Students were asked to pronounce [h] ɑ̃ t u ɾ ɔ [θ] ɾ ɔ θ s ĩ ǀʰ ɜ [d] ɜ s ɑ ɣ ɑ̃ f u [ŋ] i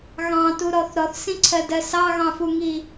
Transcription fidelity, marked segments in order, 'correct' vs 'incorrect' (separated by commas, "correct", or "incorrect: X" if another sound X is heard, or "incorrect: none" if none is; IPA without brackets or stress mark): incorrect: ɣ, correct, correct, correct